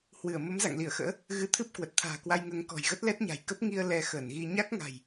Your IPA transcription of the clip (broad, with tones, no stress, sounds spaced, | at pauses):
h w ɨ˧˩ ə̯ m ə˨˦ m z a̰˧˨ ŋ l i˧˩ ə̯ x ə̰ː˧˥ | ɣ ɨ˧ t̪ʰ ɨ˦˥ p̚ k w ə˨˩ t̚ t̪ʰ a̤ː˨˩ k w a˧ j ŋ əː˨˦ ŋ k ɔ̤˨˩ j ɣ ə˦˥ t̚ l ɛ˦˥ t̚ ɲ a̤˨˩ j k ə˦˥ p̚ ŋ i˧ ə̯ l ɛ˧ x əː˧˩ n ɣ i˧ ɲ a˦˥ k̚ ŋ a̤˨˩ j